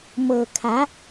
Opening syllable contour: low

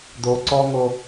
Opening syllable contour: low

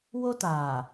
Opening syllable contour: high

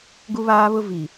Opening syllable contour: high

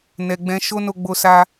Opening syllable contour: low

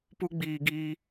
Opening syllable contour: high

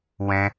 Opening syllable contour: high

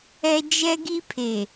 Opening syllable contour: high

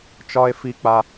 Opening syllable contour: high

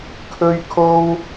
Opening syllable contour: high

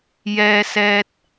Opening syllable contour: high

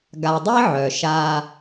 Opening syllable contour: low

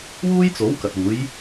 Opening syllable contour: high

